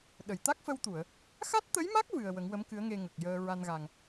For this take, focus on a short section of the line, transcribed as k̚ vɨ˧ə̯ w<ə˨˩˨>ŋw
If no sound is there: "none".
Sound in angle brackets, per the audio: ə˨˩˦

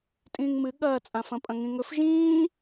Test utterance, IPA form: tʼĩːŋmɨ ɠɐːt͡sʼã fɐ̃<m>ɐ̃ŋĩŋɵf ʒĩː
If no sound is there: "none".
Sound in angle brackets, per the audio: pʼ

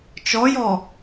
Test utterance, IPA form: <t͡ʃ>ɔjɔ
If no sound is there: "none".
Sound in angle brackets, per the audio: t͡ʃ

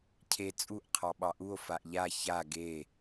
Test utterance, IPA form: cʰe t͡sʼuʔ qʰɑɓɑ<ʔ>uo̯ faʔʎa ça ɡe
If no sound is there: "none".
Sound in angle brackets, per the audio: ʔ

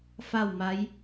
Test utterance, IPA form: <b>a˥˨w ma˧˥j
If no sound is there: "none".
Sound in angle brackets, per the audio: f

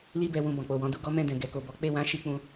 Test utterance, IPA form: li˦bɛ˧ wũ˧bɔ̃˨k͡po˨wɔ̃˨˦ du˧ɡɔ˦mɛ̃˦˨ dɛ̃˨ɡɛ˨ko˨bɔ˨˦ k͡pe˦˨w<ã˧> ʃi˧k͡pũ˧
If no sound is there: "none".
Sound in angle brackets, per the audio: ã˨˦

